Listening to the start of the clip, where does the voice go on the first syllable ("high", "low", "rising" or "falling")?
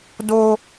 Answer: high